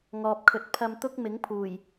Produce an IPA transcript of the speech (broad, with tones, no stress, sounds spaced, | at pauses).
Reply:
ŋ ɔː˨ p̚ kʰ ɵ˨˥ t̚ pʰ ɐ˧ m t̪ ʊ˥ k̚ m ɪ˨˥ ŋ pʰ uː˨˩ j